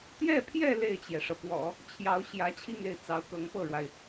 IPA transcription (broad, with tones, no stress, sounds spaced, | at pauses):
t̪ j ɛ˥˧ pʰ j ɛ˥˧ l e˥˩ ɪ̯ t͡ɕ j ɛ˩ ʂ ɤ˩ p w ɔ̰˨˩˦ | t͡ɕʰ j ɑ˧˥ ʊ̯ ɕ j ä˧˥ t͡ɕʰ i˥˧ ŋ e˥˩ ɪ̯ t͡s ɑ˧˥ ʊ̯ k ɤ˧˥ ŋ p ɤ˥˩ ɻ w a˩ ɪ̯